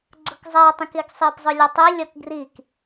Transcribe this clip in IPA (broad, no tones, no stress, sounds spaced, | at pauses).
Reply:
ɡ͡ǀ ʊ k zˤ ɛ tˤ ĩ k i ɡ sˤ i p zˤ ʊ lʲ ʌ tˤ i lʲ ʌ k ɡ r i k